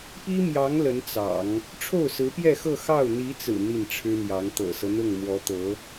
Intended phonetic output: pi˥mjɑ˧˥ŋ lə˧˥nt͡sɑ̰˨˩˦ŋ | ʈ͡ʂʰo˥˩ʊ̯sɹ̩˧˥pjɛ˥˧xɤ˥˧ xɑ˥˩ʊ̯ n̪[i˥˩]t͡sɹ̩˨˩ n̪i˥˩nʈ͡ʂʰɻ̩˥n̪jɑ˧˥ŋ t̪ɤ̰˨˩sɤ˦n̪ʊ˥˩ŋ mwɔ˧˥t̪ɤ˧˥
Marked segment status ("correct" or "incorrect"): incorrect